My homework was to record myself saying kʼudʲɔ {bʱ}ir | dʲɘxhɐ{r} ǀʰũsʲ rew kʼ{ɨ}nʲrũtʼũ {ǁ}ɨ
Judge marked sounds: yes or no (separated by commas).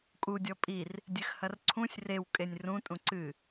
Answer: no, yes, no, no